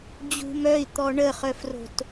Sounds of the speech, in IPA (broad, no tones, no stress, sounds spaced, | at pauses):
d͡ʑ ṳ m œ i̯ t̪ ɔ ɳ ə χ œ f r o̤ t